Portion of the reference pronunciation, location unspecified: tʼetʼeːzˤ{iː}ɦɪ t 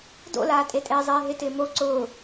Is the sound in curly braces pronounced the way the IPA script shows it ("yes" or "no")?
no